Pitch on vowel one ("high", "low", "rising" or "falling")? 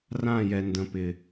falling